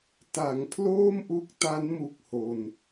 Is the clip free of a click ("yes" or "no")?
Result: yes